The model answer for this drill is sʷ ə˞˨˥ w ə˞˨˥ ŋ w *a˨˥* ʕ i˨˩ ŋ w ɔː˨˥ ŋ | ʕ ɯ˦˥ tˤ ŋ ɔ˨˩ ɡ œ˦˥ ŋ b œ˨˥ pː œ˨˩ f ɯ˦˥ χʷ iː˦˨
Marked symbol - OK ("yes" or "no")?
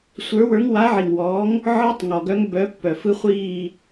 yes